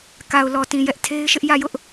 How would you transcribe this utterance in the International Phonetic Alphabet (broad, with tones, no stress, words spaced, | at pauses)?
ka˨ʊ̯ lɔ˨tĩ˨jɛ˦ʔ tʰe˦ɪ̯ʃɪ˦ʔ jä˦˨jʊ˦ʔ